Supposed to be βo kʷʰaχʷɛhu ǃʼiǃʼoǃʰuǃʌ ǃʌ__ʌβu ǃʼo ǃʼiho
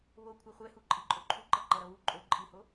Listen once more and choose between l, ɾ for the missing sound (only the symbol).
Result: ɾ